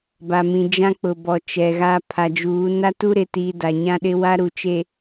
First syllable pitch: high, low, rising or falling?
low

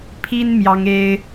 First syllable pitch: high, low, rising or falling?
high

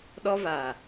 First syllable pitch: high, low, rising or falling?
high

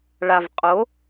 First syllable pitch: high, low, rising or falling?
low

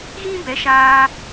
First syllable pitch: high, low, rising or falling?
high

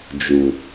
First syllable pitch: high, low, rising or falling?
low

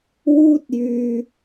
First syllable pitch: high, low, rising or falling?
high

